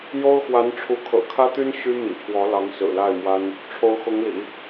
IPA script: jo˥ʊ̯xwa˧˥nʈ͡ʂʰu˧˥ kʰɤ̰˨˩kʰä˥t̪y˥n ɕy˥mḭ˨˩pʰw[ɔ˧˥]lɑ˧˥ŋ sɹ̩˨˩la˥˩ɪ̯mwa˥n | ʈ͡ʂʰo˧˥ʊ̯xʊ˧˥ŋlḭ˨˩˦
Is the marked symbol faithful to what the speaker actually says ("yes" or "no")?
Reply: yes